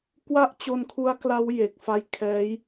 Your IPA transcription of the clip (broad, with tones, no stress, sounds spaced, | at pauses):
k w a˥˩ ʔ t͡ɕ o˧ n kʰ u˦˥ a̯ k l a˦˥ w j e˨˩ k̚ f a˦˥ j kʰ ɛː˦˥ j